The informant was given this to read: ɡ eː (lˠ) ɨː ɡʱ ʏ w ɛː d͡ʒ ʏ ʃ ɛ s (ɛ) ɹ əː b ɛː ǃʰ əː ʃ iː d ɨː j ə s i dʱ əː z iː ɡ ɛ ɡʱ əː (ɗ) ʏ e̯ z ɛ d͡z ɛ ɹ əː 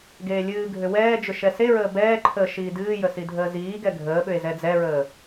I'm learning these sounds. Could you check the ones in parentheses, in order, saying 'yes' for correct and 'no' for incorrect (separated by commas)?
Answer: no, no, no